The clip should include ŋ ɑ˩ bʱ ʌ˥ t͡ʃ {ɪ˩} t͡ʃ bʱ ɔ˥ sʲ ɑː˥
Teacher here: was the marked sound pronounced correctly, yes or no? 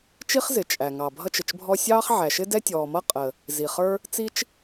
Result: yes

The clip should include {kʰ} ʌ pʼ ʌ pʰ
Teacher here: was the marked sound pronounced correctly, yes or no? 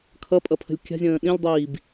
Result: yes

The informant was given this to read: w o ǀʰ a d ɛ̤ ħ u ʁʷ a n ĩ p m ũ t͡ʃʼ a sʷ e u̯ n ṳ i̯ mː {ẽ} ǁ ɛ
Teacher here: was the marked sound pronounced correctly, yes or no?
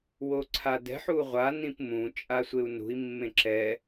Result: yes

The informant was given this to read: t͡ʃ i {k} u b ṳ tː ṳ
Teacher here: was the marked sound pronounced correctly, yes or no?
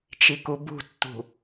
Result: yes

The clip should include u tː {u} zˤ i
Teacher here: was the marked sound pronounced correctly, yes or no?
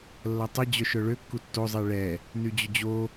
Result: no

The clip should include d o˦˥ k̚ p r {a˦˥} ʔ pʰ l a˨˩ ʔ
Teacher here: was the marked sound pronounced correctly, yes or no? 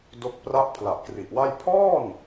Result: yes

